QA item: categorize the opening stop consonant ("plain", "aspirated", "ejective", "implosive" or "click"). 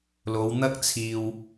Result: plain